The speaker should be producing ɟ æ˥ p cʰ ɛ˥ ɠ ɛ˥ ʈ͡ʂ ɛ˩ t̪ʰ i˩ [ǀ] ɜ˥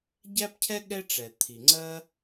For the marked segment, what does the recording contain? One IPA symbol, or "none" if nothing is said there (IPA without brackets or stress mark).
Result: ŋ͡ǀ